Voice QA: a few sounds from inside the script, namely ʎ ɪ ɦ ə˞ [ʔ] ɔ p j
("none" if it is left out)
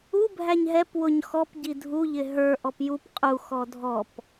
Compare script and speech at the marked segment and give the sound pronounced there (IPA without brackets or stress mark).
ʔ